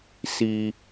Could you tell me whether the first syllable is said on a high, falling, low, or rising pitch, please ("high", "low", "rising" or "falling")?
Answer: low